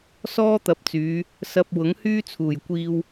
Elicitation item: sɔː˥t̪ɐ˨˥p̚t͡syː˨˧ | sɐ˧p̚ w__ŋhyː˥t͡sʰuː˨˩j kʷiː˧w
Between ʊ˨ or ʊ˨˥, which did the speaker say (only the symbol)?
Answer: ʊ˨˥